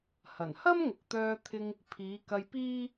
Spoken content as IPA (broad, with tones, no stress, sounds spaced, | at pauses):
h ɐ˨˩ n h ɐ˥ m ŋ ʊ˨ k̚ t̪ œː˧ t̪ʰ ɪ˧ ŋ | pʰ iː˨˧ k ɐ˧ j p iː˥